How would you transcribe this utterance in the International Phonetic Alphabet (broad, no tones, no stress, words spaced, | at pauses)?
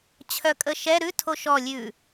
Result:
t͡ɕʰœkʼəʃɛ ɾʉ tʰoʃɔ lʲʉ